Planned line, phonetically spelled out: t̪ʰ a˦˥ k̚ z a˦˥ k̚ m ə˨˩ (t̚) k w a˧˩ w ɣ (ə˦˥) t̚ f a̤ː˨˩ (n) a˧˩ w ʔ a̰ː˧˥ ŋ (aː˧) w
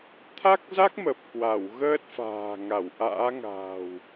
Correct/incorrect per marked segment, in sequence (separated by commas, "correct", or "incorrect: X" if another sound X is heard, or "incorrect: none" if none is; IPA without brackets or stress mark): incorrect: p̚, incorrect: əː˦˥, incorrect: ŋ, incorrect: a̤ː˨˩